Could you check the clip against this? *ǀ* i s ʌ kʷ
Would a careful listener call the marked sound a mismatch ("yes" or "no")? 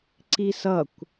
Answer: no